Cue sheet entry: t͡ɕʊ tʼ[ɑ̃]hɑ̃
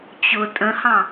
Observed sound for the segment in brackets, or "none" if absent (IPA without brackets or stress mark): ə̃